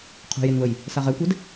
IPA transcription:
qʰ ṳ j e n β ə j | s a ʁ ɛ kʷ ɛ d

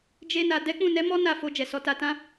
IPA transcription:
d͡ʒ e˧ n a˨ d ɛ˨˦ k͡p ũ˦˨ n ɛ˨˦ m ɔ˦ n a˦˨ f o˧ d͡ʒ ɛ˨ s ɔ˨˦ t a˧ t ã˦

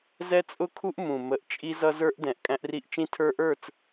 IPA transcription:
z ɛ˦ t͡sʼ ʊ˦ kʰ u˦ ʔ m ũ˨ m ə˨˦ ʔ t͡ʃʼ i˦ z ʌ˦ z ə˞˦ ʔ d ɛ̃˨ ʔ kʼ æ̃˦ ʔ r i˦ ʔ t͡ʃ ĩ˦ tʰ ə˞˦ ʔ ə˞˦˨ t͡s

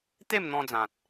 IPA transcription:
t̪ e˥˧ m n̪ ɔ̃˧ d͡z ã˨ t̚

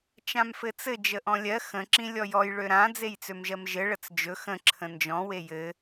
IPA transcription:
t͡ʃ ã m f ɘ t͡s ɘ d͡ʒ ə ʔ ɔ̃ lʲ ɜ x ə̃ ǁ ĩ lʲ ɔ j ɔ j ɭ ø ɾ ã d͡z e j t͡s ø m ʒ ɜ m ʒ ɘ ɭ ə t͡s d͡ʒ ɵ x ə̃ ǁʰ ə̃ n d͡ʒ ɔ̃ w e j ɘ

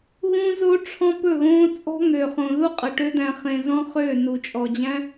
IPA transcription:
ɣ ũ˦ z o˦ ʈ͡ʂʰ ɔ̃˦ p ɵ˦˨ ɣ õː˦ t͡sʼ ɔ̤˦ ŋ ø˨ χ õ˨ ð u˦ qʼ ə˨ ʈ ø˦ d̪ æ̃˧ χ ẽ˧ z ɔ̃˦ χ ø˦˨ n u˨ t͡ʃʼ ɔ˨ d͡ʑ æ̃˦

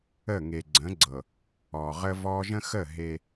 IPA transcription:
ə˦˨ ŋ e˨ ɡ͡ǀ ə̃˨˦ ɡ͡ǀ ɤ˨ | ɔː˨ ʁ ə˦ v ɔ˦ ʒ ə̃˦ x ə˦˨ ɦ e˦

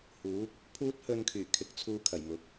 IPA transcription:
h uː˨˥ k̚ | pʰ uː˧ t̚ h ɵ˨ n kʰ yː˨˩ kʰ ɪ˨ k̚ t͡sʰ uː˧ kʰ ɐ˨˩ j m ʊ˨˥ k̚

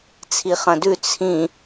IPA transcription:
t͡sʰ i χ ɐ̃ d ʉ t͡sʰ ĩ

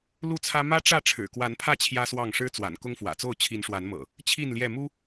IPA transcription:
l u˥˨ t͡sʰ ä˦ m ä˦ ʈ͡ʂ ä˥˨ ʈ͡ʂʰ ɻ̩˨˩ k w a˨˦ n pʰ ä˥˨ t͡ɕʰ j ä˦ s w ɑ˥˨ ŋ ʂ ɻ̩˦ t͡s w a̰˨˩ n k ʊ˦ ŋ f w ä̰˨˩ t͡s o˥˨ ʊ̯ t͡ɕʰ i˨˦ n ʂ w a˨˦ n m ɤ̰˨˩ | t͡ɕʰ i˥˨ n l j ɛ˥˨ m u˦

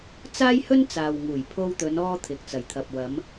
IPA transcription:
t͡s aː˥ j h ɵ˥ n t͡s aː˨ w ŋ uː˨˩ j pʰ o˧ w t̪ ɵ˨˧ n ɔː˧ t̪ʰ ɪ˨ k̚ t͡s ɐ˨˩ j t̪ʰ ɐ˨ p̚ w ɐ˨˧ m

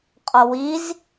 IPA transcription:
qʼ ɔ w i z

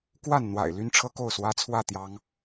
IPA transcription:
k w a˥˨ n n̪ w a̰˨˩ ɪ̯ l y˦ n ʈ͡ʂʰ ɤ˦ k o˥˨ ʊ̯ s w ä˦ t͡sʰ w ä˥˨ t̪ j ɑ˨˦ ŋ

